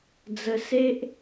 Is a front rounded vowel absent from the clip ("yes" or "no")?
yes